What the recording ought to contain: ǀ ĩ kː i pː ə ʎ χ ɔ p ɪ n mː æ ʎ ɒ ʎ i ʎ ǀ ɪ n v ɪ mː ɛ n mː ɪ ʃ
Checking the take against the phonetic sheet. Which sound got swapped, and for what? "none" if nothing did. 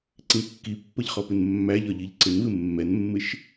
none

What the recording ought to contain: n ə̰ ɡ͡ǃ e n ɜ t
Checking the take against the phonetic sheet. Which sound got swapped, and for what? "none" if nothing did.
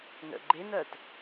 none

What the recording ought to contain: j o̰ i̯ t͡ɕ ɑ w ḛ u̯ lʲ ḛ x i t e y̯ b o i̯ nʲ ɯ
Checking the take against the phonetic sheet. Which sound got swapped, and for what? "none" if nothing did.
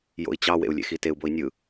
y̯ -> u̯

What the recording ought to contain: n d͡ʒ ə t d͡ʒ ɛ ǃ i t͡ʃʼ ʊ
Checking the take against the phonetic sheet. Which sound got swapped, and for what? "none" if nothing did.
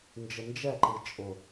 t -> n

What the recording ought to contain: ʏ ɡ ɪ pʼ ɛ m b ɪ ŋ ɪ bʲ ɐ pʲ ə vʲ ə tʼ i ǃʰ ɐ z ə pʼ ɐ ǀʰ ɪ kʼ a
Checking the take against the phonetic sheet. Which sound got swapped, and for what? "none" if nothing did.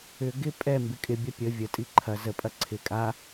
ŋ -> kʼ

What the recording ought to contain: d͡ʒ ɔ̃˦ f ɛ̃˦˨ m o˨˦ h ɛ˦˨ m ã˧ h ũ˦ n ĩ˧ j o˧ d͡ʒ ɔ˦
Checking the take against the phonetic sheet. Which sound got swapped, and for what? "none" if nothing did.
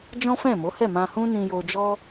none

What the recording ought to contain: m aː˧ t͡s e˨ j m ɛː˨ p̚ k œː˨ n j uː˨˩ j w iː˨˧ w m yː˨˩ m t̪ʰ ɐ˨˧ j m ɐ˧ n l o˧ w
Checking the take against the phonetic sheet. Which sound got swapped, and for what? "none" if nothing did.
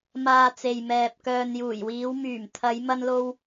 none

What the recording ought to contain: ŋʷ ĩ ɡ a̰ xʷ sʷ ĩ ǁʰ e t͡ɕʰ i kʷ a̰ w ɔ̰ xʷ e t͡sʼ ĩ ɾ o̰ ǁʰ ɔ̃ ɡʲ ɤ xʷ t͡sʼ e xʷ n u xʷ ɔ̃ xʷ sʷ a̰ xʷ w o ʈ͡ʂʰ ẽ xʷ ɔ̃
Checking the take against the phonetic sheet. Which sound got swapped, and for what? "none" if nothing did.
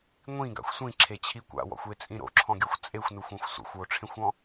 none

